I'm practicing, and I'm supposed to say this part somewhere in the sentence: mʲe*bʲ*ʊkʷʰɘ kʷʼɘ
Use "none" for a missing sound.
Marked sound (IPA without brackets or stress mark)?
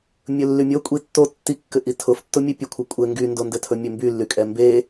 pʲ